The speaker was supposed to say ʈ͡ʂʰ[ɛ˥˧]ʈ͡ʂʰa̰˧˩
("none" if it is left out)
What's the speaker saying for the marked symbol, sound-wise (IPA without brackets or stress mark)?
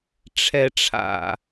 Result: ɛ˧